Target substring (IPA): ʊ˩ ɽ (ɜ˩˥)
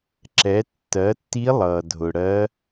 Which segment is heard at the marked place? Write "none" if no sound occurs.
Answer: ɜ˧˥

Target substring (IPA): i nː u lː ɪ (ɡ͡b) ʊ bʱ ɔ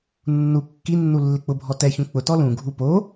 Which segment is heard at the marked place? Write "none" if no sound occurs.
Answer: k͡p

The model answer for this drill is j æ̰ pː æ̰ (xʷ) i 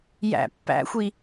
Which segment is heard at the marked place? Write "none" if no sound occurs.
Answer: xʷ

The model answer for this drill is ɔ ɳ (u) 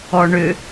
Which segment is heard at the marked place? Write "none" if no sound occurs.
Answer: ʏ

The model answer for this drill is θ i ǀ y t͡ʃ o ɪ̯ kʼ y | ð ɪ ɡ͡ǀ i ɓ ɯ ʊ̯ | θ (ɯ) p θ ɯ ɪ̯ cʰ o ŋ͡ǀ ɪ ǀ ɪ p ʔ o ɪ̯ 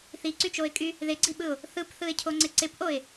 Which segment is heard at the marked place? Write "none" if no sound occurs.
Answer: ɯ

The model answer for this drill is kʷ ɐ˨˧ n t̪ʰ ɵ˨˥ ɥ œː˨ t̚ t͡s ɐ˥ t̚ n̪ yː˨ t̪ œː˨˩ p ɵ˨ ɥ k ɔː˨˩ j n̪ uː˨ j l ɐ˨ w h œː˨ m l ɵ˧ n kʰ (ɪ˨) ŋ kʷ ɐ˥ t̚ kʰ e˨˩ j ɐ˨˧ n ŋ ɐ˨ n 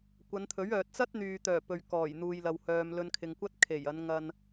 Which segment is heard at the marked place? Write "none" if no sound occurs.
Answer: ɪ˨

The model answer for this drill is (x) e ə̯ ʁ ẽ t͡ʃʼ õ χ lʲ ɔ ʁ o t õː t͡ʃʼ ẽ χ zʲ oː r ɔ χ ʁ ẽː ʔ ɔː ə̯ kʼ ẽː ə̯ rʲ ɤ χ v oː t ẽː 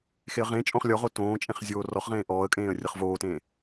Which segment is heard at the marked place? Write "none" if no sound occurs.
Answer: x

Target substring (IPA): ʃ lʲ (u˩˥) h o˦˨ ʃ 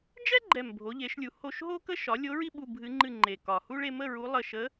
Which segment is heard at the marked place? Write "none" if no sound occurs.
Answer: u˩˥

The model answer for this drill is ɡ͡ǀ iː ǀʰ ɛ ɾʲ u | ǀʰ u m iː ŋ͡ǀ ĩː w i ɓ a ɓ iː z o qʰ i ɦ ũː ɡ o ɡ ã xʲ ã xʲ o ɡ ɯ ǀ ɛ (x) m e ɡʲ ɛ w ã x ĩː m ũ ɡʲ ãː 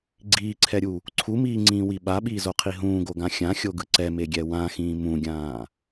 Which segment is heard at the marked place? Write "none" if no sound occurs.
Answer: none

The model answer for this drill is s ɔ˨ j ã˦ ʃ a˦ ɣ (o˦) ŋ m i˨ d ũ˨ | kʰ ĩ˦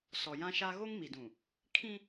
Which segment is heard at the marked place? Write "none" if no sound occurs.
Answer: o˦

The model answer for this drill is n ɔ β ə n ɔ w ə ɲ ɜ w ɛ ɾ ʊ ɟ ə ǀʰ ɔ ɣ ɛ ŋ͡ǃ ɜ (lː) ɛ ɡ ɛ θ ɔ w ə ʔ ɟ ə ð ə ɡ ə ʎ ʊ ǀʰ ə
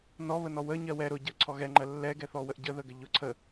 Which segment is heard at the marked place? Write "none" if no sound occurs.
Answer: lː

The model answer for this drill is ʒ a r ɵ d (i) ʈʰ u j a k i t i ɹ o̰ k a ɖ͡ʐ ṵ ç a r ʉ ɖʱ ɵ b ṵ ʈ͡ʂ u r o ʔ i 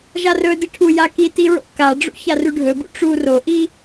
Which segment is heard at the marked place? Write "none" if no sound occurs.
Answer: i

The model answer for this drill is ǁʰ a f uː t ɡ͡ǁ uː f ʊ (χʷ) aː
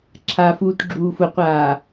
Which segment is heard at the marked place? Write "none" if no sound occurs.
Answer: qʷ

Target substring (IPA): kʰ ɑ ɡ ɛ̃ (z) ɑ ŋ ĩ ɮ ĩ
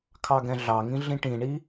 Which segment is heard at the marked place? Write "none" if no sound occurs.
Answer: ɮ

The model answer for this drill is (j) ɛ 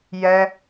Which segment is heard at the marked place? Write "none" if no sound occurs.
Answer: j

